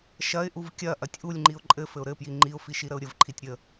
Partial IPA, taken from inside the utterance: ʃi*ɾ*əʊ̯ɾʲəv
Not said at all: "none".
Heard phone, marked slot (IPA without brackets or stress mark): ɾ